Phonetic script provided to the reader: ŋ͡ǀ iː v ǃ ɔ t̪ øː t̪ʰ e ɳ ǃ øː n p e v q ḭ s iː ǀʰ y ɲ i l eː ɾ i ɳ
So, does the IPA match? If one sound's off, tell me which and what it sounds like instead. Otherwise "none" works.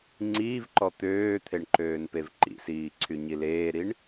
q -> ǃ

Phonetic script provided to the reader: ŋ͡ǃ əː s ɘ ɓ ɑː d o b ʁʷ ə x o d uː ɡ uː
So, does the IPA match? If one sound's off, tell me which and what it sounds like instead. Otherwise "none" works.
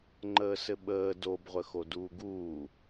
ɑː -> əː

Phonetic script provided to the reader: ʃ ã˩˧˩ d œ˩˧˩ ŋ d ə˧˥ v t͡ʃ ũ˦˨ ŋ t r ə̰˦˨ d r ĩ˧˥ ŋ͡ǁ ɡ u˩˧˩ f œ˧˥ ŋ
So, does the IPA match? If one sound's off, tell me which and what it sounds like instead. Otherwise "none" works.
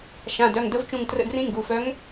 ŋ͡ǁ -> ŋ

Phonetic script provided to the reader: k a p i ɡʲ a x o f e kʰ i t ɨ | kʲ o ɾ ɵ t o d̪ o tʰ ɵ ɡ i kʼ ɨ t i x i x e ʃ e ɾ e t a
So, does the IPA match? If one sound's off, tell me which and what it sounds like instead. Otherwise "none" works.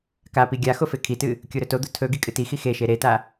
none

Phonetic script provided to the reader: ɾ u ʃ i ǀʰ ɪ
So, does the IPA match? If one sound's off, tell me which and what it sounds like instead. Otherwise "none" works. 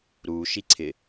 none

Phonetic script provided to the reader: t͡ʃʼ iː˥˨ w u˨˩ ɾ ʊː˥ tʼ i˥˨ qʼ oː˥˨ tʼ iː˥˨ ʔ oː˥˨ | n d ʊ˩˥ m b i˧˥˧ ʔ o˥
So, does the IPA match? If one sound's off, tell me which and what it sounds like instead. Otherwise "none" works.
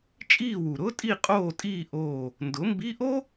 none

